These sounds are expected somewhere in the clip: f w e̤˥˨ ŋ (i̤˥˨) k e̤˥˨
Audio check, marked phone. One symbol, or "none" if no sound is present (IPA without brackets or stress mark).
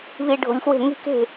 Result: i̤˥˨